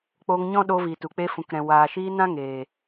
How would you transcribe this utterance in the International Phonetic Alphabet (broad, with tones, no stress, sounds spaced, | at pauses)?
k͡p oː˧ ŋ ɲ ɔ̃˦ ɗ oː˧ v iː˨ t u˨ k͡p e˧ f ũ˨ k ɾ ɛ̃˨ w aː˨ ʃ i˧ n ã˦ ŋ eː˨